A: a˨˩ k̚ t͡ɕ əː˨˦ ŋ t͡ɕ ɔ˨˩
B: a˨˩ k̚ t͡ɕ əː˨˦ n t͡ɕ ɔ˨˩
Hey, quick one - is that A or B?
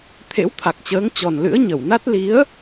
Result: A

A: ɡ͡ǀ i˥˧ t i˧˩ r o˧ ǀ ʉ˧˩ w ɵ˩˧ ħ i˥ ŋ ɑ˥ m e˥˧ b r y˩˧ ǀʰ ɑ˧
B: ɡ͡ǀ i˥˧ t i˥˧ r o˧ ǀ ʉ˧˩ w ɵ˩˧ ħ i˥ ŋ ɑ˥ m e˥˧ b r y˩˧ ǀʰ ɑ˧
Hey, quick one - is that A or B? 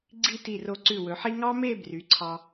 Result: A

